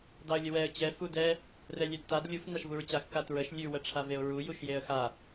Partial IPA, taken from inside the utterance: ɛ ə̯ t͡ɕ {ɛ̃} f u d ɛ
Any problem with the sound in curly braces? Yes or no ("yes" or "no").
yes